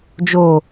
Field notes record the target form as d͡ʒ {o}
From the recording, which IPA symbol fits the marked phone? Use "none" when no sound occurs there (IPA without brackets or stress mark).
o